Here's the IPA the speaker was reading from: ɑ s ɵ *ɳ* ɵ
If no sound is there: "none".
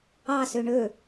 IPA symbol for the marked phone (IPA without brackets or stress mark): ɳ